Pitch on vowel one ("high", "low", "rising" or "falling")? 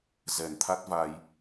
low